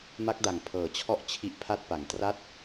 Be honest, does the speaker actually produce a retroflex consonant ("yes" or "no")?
no